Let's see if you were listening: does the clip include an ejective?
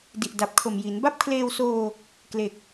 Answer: no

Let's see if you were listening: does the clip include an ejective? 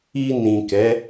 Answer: no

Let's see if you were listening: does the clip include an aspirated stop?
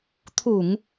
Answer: yes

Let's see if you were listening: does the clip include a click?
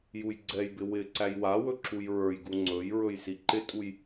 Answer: yes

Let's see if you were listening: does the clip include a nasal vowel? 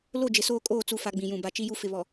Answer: yes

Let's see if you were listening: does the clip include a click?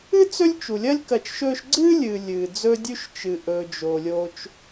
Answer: yes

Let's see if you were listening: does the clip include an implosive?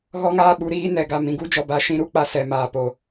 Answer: yes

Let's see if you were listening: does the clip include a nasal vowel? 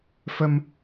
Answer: no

